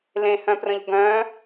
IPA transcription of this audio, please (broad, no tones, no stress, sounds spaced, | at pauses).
l ẽ h œ̃ p r ə̃ ʎ ɡ œ̃